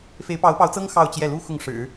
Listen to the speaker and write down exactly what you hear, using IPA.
f e˧˥ ɪ̯ p ɑ˧˥ ʊ̯ p ɑ˧˥ ʊ̯ t͡s ɤ˥ ŋ x ɑ˥˧ ʊ̯ t͡ɕ j ɛ˥˩ l u˥ x ʊ˥˩ ŋ ʂ ɻ̩˨˩˦

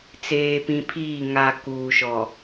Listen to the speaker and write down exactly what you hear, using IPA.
t͡s eː˨ p ĩ˨ pʰ iː˦˨ ŋ a˨ k uː˨ ʃ ɔ˨

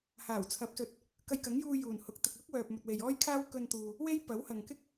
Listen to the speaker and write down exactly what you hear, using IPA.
h aː˨˩ w t͡sʰ ɐ˨˥ p̚ s ɵ˨˥ t̚ | k ɐ˧ j k ɐ˨˥ ŋ j uː˧ j uː˨˩ n h ʊ˨˥ k̚ t̪ ɪ˨ k̚ l ʊ˥ k̚ w œː˨ p̚ m ɵ˨ t̚ w e˨ j ɔː˥ j kʰ aː˥ w k ɵ˧ n t̪ uː˨ | w e˥ j p ɐ˨˥ w h ɐ˨ ŋ k ɪ˥ k̚

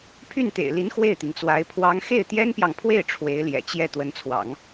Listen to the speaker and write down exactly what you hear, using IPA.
pʰ y˥˩ n t̪ ḛ˨˩ ɪ̯ l i˧˥ n x w e˥˩ ɪ̯ t̪ i˩ ŋ t͡s w a˧˥ ɪ̯ pʰ w ɑ˥ ŋ x e˥˩ ɪ̯ t̪ j ɛ˥ n p j ɑ˨ ŋ pʰ w e˥˩ ɪ̯ ʈ͡ʂʰ w e˧˥ ɪ̯ l j ɛ̰˨˩ t͡ɕ j ɛ˥˩ t̪ w ə˧˥ n t͡sʰ w ɑ̰˨˩˦ ŋ

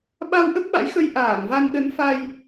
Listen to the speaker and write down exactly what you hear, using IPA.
ɓ a˧ w ʔ ə˦˥ p̚ ɓ a̰˧˥ j x ə˧ j ʔ aː˧˩ ŋ v a˧ n ɗ ə˨˦ n f a˧ j

